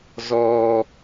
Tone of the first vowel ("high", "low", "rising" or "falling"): high